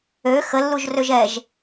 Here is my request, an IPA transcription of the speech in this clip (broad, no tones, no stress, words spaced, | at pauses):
ø xəlːuʒrøʒ ɛʒ